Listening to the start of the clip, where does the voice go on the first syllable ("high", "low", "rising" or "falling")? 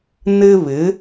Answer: high